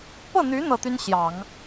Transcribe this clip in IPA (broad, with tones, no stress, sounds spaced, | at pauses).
p ɤ˥˩ n̪ y˧˥ n̪ ɤ˥˩ t̪ y˥ n ɕ j ɑ˨˩˦ ŋ